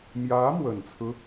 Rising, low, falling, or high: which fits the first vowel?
rising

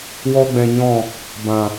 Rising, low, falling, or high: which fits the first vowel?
high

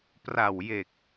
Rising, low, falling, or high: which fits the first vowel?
low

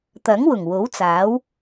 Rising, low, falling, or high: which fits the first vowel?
rising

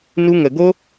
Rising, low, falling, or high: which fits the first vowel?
high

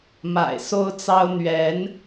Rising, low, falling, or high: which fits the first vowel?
low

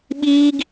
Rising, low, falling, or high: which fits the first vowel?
high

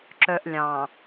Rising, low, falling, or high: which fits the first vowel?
low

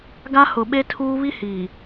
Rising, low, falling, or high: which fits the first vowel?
high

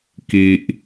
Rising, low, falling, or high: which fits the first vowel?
low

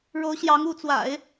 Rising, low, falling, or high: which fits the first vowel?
rising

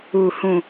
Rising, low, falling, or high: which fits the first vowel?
falling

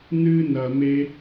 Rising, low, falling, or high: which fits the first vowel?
high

